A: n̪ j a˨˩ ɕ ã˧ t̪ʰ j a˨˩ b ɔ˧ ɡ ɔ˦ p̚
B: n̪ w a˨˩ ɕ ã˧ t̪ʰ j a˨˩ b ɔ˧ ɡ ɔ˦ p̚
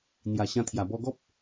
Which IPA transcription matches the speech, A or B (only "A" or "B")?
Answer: A